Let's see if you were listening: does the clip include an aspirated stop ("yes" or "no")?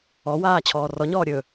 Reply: yes